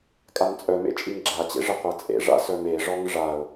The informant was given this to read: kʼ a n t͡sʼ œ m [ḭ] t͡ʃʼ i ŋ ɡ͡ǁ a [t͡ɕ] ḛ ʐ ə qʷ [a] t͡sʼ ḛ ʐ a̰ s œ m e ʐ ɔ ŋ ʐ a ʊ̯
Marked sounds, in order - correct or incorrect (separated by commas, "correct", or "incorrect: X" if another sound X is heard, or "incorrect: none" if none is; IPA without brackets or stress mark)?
incorrect: ḛ, correct, correct